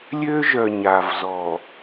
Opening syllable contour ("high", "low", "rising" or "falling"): high